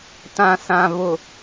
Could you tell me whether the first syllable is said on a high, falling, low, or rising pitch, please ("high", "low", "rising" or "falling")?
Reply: low